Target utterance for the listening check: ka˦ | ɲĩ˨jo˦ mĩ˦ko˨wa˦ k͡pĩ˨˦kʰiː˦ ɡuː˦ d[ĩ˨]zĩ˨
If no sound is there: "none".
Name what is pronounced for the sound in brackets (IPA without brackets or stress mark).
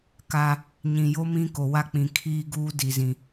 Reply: i˨